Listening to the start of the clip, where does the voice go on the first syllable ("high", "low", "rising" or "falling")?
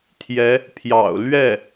rising